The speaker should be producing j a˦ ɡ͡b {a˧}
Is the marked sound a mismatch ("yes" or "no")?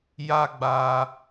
no